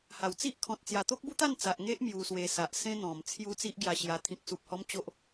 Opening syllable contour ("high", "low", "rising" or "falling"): low